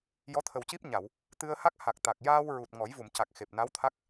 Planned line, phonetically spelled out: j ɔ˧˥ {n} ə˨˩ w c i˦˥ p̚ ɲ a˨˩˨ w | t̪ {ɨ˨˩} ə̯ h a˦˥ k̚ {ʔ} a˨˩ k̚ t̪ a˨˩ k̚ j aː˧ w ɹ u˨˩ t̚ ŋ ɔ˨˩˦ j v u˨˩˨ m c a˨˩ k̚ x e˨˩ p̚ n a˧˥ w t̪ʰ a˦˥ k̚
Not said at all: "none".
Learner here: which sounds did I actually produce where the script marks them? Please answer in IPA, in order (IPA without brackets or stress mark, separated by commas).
t̪ʰ, ɨ˧, h